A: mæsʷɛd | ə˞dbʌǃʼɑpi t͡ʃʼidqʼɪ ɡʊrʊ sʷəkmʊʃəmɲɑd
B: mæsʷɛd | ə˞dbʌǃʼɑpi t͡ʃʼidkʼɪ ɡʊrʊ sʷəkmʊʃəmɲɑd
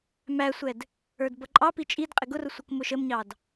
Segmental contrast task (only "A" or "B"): A